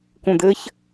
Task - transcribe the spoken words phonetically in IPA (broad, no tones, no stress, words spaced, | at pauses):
kũd̪ɘç